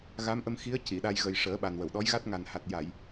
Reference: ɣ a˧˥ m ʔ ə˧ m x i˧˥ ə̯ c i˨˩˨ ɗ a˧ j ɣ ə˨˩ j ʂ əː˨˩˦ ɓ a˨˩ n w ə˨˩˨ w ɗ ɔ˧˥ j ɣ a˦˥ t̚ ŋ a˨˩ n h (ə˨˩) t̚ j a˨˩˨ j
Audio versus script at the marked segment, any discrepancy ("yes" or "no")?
yes